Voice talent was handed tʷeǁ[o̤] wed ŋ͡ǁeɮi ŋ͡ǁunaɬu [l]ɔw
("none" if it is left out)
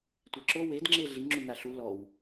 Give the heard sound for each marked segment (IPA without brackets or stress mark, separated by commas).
o, l